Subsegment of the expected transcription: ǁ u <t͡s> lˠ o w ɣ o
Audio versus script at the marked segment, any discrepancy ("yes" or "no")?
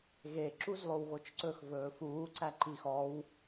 yes